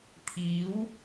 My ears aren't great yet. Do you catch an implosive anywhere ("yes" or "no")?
no